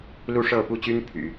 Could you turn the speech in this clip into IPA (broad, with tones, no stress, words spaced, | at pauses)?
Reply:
lu˥˧ʂɤ˥˧pu˥˩t͡ɕy˥n pʰy̰˨˩˦